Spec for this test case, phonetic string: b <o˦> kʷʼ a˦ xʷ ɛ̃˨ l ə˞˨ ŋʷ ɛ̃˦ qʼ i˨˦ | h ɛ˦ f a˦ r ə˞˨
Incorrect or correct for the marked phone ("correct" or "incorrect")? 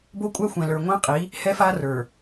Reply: correct